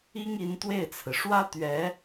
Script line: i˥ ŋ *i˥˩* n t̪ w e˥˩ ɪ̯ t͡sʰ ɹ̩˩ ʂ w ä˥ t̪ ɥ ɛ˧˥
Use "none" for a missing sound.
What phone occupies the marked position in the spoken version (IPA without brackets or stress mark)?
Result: i˧˥